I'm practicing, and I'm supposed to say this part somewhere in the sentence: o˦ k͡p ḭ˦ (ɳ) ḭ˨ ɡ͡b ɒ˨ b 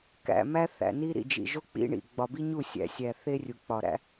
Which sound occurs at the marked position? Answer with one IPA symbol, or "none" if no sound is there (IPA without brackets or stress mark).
ɳ